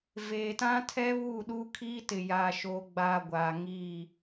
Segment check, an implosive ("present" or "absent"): present